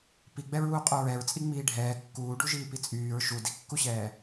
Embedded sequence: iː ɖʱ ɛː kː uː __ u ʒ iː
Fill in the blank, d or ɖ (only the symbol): ɖ